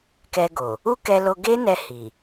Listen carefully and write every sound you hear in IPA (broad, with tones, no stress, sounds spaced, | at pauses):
k ɛ˧ ɡ o˨ | u˦ k ɛ˧ l o˧ ɡ e˦ n ɛ˧ h i˨